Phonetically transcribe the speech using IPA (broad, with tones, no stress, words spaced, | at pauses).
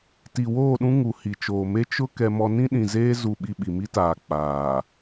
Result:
ti˨woː˦˨ɗũ˦ ŋu˨hi˨t͡ʃoː˨me˦ t͡ʃʊ˦ kɛ˦mɔ˦ nĩ˦ɗĩ˨ zeː˦ zu˦˨ɓi˦ ɓi˨mi˦taː˨ k͡paː˨